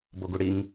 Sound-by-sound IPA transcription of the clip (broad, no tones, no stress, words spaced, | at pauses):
boɡuɽiŋ